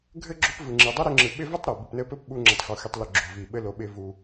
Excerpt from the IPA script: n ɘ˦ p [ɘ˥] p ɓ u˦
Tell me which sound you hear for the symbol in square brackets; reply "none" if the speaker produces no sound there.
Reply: ɘ˥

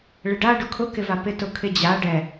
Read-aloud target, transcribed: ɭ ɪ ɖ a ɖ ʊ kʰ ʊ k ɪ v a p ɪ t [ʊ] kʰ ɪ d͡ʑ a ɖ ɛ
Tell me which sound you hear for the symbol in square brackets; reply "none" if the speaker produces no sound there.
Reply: ʊ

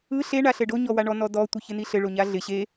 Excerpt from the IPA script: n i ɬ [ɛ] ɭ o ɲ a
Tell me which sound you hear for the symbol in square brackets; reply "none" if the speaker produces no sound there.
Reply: ɘ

